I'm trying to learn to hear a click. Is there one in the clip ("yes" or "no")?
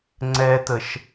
yes